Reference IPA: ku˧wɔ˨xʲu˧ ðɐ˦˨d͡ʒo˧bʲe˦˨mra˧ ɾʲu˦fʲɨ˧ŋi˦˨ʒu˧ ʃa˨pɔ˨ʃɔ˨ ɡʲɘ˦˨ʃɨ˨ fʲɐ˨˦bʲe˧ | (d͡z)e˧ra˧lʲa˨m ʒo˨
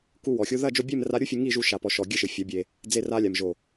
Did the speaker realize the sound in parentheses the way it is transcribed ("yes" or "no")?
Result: yes